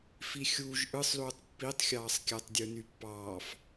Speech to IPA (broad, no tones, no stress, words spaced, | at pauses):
fixʲuːʒ ʔɯsˤluːtˤ pːitˤxʲɑːsˤkʲætˤdʲɯ nypːɑːf